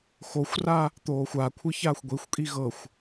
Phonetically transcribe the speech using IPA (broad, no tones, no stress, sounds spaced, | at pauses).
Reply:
x o xʷ r a | t̪ oː xʷ a kʷʰ ɯ ç aː xʷ ɡʷ i xʷ kʼ i ɣ ɤ xʷ